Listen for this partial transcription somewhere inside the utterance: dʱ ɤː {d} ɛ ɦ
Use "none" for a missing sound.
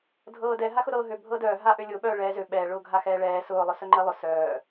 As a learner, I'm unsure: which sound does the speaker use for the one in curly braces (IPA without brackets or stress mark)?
d